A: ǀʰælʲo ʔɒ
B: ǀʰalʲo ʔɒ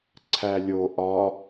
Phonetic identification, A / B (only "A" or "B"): A